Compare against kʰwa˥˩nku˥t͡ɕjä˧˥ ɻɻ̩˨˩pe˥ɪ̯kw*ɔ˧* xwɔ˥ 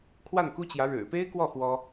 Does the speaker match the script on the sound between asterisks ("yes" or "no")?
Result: no